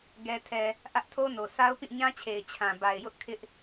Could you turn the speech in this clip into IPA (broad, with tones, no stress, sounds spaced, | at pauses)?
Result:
ɡ ɛ˨ tʰ ɛ˨ | ʔ ä˦ ʔ tʰ o˦ n o˨ s a˦ ʊ̯ p ĩ˦˨ ɲ ã˦ t͡ɕʰ e˨ ɪ̯ t͡ɕʰ ã˨ b a˨ ɪ̯ j ʊ˦ ʔ kʰ ɪ˦ ʔ